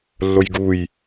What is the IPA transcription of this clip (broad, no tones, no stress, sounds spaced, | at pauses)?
lː o j ɡ u j